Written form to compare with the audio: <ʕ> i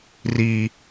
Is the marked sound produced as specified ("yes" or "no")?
no